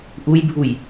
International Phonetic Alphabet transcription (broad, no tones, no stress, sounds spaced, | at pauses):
ʔ u j bʱ u j